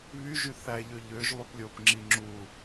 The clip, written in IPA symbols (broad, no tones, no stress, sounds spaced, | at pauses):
β y ʒ y θ æ ʎ ø ʎ ø ʒ lˠ y p lʲ o p ŋ͡ǁ i ŋ͡ǁ u